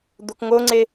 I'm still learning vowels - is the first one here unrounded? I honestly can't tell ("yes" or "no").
no